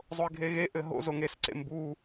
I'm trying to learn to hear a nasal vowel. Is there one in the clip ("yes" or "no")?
no